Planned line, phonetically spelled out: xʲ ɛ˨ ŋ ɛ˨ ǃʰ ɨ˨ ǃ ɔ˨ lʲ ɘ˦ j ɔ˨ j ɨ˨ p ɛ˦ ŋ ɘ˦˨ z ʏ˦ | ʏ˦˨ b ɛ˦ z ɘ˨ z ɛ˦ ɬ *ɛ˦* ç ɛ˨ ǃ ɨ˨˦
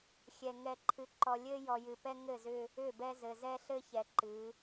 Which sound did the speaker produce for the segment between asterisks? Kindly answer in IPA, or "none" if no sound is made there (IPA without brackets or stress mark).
ɘ˦